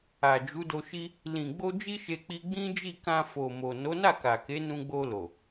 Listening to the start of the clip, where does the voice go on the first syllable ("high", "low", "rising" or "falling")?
low